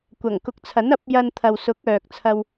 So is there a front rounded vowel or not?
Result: yes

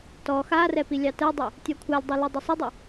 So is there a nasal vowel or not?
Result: no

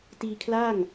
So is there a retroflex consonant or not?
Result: no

